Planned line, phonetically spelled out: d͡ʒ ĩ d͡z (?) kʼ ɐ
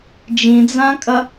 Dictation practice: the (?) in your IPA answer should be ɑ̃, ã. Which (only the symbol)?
ã